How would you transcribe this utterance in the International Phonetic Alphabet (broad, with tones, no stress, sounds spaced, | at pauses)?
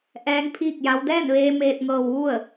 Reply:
ʔ ɛː˧˥ ŋ pʰ iː˥˨ k̚ j a˧˥ w d ɛː˥˨ n ʋ eː˧ m eː˧ t̚ ŋ ɤː˧ w ʋ u˥˨ ə̯